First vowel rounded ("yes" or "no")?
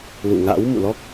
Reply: yes